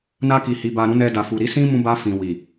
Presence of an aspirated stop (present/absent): absent